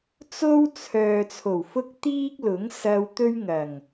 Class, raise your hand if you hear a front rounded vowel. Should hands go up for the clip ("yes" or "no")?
yes